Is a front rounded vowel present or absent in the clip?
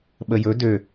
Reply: present